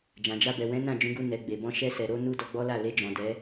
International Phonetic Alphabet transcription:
d͡ʒ ã˨ d͡ʒ a˧ b ɛ˨ w ɛ̃˨˦ n ã˦˨ d͡ʒ ũ˨˦ ɡ u˧ n ɛ˨ ɡ͡b e˨ b ɔ̃˧ ʃ ɛ˧ s ɛ˨ ɾ o˨˦ n u˦ d ɔ˧ ɡ͡b ɔ˦ l a˦˨ l e˧ d͡ʒ ɔ̃˨ d ɛ˨˦

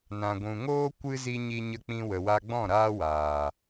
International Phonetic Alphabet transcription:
n ã˨ ɡʷ ũ˨ ŋ oː˦ kʷ ɨ˧ z i˦ ɲ i˦ ɲ ə˧ k͡p ĩ˧ w ə˨ w a˧ ɡ͡b ɔ̃˦˨ ɾ aː˦ w aː˨

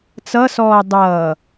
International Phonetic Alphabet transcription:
t͡s ʌ s ɔː dˤ ʌː

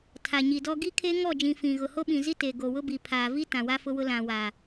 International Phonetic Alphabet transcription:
tʰ a˨ ɲ i˨ d ɔ˦ ɡ i˦ kʰ e˦ ŋ ɔ˦˨ d͡ʒ ĩ˨ f ĩ˨ ɣ ʊ˨ h o˦ ɓ ĩ˨ z i˦ t e˨ ɡ o˨ w ʊ˦ b i˨ pʰ aː˨ v i˦ t ã˨ w a˦ f ʊ˦ w ʊ˦ l ã˨ w a˨

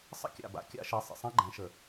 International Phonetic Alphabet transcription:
sˤ ə̰˥ kʲ a̰˨ b a̰˨˦ kʲ a̰˥ ʃ e˨˦ sˤ ə̰˨ sˤ ã˥ ɡ͡ǃ ɛ̃˨˦ ʃ ə˨

